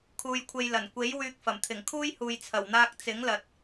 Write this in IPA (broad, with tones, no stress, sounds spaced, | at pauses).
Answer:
kʰ uː˧ j kʷʰ e˧ j l ɐ˨˩ n kʷ e˨˥ j w yː˧ k̚ f ɐ˨˩ m t̪ʰ ɪ˨˩ ŋ kʰ uː˥ j h uː˨ j t͡sʰ ɐ˨˩ w n̪ aː˧ k̚ t͡s ɪ˨˥ ŋ l ɐ˨ t̚